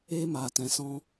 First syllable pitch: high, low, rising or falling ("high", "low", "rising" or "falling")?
high